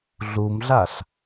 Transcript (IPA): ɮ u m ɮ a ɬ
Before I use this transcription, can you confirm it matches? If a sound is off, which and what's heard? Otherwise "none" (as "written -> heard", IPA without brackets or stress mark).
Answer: none